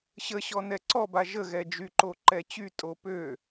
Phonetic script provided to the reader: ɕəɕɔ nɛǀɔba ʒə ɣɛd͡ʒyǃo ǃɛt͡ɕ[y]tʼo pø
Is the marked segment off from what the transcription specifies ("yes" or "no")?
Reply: no